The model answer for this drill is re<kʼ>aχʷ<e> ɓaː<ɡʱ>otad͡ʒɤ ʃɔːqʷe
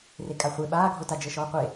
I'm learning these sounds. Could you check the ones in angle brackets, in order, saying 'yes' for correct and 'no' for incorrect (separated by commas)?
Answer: yes, yes, yes